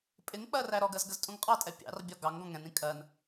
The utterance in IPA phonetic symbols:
pʼɪŋk͡pɜ ræɾɔɡɜz ɡəztʼũŋqʼɑtʼɛ pʲɑ̰rbʲɒ ɡɑŋ ɡɔ̃ŋɛ̃nĩ kʼɜn

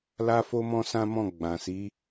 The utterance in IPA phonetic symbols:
la˦fo˦ mɔ̃˦sã˦mɔ̃˦˨ ɡ͡bã˨si˨˦

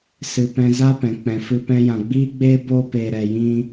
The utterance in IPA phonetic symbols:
sɨ˨pɛ̃˧za˦ pɛ̃˨k͡pɛ̃˨fɨ˧ pɛ̃˧jã˨ɡ͡biː˦ɡ͡beː˦ bo˧pe˨ ɾɛ˨ jĩ˦

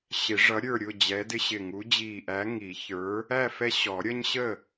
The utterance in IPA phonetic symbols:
ɕɪ˨˩˦ ʐʌ˨˥ ɾʲə˞˥˨ ɾʲʊ˥˨d͡ʑɛ˨˥dɪ˦ɕɪ˧˩ ŋu˨˥d͡ʑiː˧˩ʔæ˨˥ ŋi˨˩˦çə˞˨˥ | æ˥˨ fɛ˦ ɕɔ˨˩˦ɾʲʌ˦ɲɕə˥˨

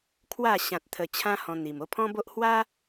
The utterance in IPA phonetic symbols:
kʰwa˥˧ ɕã˨t̚t̪ʰə˨˩t͡ɕʰã˧ hɔ̃˧n̪i˨˩m o˧pʰɔ̃˦bo˦ʔ hwa˦

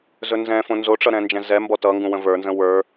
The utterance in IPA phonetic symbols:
zɵnzɛ̃fõ nzoʈ͡ʂʌ ɾɛ̃nd͡ʒɛ̃zɛmbɔ tʌŋɡũ wə̃və˞nzə̃ wə˞

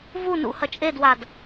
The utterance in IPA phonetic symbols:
vu nṵ hɐt͡ʃʼedwad

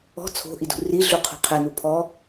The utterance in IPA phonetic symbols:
ɔ̤ t͡sʰo̤ʔidṳ riɮuqʰṳ qʰɛnu pʰɔ

